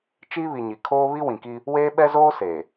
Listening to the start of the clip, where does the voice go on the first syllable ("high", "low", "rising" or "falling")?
high